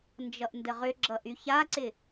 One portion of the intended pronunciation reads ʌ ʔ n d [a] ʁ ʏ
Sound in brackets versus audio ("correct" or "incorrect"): incorrect